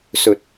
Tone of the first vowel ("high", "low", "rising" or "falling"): high